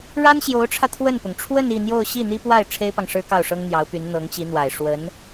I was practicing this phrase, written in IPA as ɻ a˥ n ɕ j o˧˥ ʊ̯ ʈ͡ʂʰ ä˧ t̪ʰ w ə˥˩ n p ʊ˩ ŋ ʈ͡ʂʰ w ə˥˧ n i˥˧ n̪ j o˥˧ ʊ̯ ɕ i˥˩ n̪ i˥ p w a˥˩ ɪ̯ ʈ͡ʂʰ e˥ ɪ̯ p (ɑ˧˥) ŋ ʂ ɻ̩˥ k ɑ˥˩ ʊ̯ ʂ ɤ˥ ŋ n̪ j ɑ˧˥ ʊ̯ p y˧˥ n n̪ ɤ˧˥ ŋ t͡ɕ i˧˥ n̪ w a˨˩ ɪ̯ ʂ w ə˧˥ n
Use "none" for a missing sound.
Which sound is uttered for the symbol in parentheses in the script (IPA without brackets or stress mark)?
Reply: ɑ˨